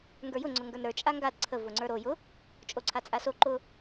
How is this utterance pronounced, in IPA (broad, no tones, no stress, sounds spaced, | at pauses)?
ŋ ɡ ə˞ j ʊ ŋ͡ǀ ʊ ŋ ɡ ə˞ n ɾ ə˞ t͡ʃʼ a ŋ ɡ a d ǀʰ ə v ʊ ŋ͡ǀ ə˞ ɾ o j ʊ | t͡ʃʼ o ǀʰ a t͡sʼ a s o ǃ ʊ